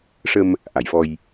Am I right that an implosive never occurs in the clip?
yes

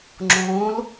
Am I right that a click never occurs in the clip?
no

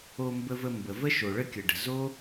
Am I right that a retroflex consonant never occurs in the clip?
no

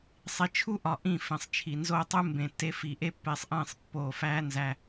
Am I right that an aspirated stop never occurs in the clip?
no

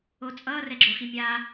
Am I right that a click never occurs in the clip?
no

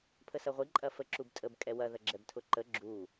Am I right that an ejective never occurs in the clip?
no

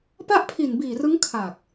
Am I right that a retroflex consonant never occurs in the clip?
yes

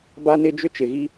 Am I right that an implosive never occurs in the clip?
yes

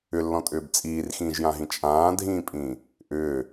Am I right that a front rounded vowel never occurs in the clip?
no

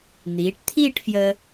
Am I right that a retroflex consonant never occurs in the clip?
no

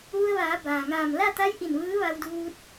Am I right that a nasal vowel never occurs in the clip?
yes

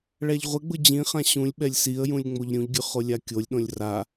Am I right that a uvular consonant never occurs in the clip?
no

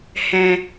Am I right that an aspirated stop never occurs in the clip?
yes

